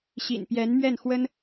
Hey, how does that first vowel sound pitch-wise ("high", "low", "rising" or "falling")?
low